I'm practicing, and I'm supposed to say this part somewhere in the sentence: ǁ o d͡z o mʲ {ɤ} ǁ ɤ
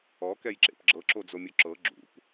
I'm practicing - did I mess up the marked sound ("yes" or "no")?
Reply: yes